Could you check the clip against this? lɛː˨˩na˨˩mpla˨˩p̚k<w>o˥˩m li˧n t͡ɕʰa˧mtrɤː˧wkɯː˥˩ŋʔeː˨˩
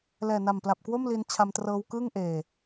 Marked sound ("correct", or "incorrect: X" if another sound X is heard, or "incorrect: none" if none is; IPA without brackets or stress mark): correct